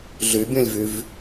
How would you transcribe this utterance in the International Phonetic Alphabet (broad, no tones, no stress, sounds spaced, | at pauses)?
ɮ y bʲ õ lʲ v y v